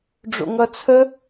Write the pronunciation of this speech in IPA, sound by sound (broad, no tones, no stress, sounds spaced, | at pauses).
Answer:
ɖ͡ʐ o̰ ŋ ʌ t͡sʰ ə